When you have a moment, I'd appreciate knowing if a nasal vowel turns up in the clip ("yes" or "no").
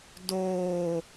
no